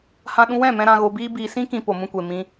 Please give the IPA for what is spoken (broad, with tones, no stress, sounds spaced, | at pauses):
h ã˧ ɗ ũ˧ w ɛ̃˦˨ m ɛ̃˧ ɾ ã˧ ɣ o˧ b iː˦ b iː˧ s ĩ˦ k ĩ˧ p o˨ m ũ˧ kʷ e˨ m ĩ˧